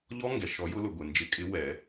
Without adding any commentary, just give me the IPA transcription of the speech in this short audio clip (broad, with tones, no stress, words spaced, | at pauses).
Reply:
ʎɔ˦˥ŋɡɛ˩ʃɔ˨˩˦jʊ˨˦ lʊ˩ɡʷe˩nd͡ʒɪ˨˩˦kʼɪ˨˦ wɛ˨˩˦